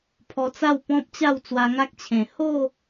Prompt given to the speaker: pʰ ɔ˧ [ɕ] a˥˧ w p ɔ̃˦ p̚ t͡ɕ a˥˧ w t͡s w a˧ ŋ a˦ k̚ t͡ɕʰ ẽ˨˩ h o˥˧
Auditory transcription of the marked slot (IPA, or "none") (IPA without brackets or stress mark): t͡s